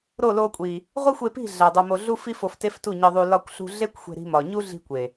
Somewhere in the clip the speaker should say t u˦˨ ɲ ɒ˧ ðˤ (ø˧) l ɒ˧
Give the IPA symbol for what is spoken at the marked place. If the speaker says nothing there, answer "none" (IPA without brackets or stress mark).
u˧